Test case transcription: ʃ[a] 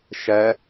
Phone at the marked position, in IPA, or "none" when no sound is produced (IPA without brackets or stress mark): æ